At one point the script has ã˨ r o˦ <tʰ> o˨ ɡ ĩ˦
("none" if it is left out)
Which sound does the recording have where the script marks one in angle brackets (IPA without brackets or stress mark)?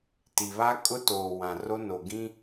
n